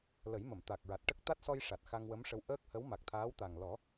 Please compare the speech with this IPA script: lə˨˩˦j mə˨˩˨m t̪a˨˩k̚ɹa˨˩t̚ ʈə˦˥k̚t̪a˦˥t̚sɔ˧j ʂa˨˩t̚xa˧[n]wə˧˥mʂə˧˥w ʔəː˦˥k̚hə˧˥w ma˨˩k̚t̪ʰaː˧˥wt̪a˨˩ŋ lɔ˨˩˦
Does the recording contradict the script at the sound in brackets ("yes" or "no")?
yes